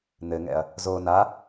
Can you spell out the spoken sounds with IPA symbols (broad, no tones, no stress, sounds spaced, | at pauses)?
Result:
n̪ ɘ ŋ ɛ̰ ɐ̯ | z o n a